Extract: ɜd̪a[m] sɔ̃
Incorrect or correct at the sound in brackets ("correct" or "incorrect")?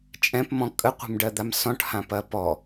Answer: correct